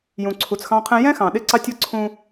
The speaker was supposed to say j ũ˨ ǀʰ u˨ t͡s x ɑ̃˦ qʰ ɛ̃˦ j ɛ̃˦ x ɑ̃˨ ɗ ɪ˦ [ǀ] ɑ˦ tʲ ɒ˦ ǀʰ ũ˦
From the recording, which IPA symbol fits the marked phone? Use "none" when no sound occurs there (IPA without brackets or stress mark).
ǀ